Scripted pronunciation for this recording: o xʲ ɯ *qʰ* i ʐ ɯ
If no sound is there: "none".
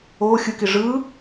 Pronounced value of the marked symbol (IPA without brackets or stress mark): k